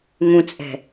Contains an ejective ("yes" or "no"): yes